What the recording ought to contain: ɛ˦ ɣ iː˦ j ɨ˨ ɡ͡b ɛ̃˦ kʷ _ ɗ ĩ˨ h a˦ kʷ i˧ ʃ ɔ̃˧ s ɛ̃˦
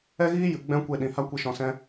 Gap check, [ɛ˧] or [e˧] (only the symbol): e˧